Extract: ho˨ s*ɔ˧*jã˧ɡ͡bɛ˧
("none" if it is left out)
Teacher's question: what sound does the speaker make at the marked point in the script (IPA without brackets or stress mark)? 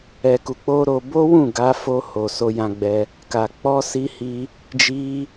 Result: o˧